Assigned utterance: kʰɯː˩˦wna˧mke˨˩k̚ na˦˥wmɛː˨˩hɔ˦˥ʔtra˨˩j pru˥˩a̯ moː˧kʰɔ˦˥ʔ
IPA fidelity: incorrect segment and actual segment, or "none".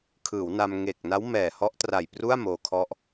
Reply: k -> ŋ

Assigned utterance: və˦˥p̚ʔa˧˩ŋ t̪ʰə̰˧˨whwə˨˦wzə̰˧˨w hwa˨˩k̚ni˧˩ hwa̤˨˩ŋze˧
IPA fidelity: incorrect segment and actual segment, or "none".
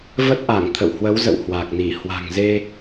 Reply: p̚ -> t̚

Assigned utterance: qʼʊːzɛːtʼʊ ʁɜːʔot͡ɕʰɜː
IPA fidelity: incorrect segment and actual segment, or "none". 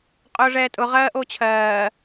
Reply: z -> ʐ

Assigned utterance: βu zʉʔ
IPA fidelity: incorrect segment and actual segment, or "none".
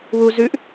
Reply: none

